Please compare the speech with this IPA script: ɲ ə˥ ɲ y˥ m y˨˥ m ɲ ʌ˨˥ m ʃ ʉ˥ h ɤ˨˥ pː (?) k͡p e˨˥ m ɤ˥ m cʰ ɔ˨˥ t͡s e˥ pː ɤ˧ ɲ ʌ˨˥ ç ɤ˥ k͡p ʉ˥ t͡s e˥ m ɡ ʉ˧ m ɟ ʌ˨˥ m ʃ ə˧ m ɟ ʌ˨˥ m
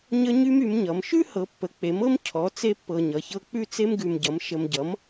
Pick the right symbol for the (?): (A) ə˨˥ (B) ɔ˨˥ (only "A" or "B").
A